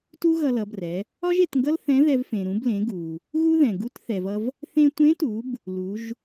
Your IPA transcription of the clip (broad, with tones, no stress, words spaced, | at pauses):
tu˥ɣʌ˧lʌ˩˧brɛ˩˧ | ɒ˥ʒe˩˧tŋɡʌ˥l θɛ̃˧˥ðɛ˧vfẽ˩ ɾũ˩˧blẽ˩˧ ɡu˩ | ɣu˥ ðɛ̃˩ ɡu˧˥t θɛ˩vʌ˧v | θẽ˧tʷẽ˧˥tu˩˧b | lu˩˧ʒ